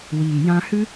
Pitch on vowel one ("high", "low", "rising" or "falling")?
low